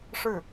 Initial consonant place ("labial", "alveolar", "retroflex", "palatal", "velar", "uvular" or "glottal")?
retroflex